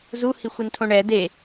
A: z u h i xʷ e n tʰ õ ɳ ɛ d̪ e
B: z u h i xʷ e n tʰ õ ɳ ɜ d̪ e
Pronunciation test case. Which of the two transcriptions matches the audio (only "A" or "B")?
A